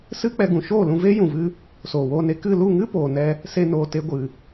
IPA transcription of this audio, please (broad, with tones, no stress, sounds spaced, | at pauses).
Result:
s ɨ˦ k͡p ɛ˧ ɡ ũ˨ ʃ oː˦˨ l ũ˧ v e˦ j ũ˨ v ɨ˧ | s oː˨ w oː˧ n e˧ k ɨ˦˨ l u˦˨ ŋ ɨ˦ p oː˨ n ɛ˧ | s e˧ n oː˨ t e˧ ɡʷ ɨ˨